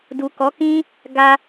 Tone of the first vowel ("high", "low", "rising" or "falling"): low